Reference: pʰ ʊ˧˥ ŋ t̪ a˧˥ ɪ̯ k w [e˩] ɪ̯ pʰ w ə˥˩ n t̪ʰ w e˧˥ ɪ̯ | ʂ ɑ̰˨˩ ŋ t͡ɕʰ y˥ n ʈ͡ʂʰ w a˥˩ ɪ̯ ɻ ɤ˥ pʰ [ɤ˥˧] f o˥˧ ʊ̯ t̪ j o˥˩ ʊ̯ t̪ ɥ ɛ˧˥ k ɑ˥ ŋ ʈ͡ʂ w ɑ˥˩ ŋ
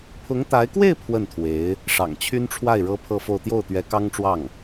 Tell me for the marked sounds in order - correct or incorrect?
incorrect, correct

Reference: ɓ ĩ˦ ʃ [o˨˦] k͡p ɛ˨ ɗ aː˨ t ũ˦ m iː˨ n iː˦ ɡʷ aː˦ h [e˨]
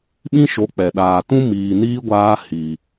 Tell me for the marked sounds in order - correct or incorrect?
correct, incorrect

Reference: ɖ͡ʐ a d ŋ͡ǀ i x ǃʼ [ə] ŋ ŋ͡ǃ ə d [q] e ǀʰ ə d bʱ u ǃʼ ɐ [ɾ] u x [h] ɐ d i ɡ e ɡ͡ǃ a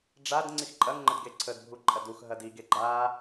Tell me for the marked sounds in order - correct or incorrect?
incorrect, incorrect, incorrect, incorrect

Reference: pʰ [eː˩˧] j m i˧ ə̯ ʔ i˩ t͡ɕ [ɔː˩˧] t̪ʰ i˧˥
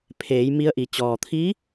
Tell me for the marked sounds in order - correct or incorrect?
correct, incorrect

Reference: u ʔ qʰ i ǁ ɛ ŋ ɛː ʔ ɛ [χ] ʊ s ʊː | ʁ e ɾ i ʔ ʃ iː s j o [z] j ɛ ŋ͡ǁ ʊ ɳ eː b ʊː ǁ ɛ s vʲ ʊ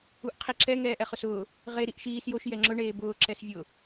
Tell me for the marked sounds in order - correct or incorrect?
correct, incorrect

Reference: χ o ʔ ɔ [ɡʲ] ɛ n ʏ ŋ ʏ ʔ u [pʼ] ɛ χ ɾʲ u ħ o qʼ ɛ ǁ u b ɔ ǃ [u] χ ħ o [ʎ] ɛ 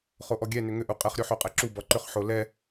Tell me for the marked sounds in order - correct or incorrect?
correct, incorrect, incorrect, incorrect

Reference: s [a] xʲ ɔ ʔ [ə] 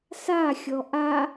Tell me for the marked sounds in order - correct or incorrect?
correct, incorrect

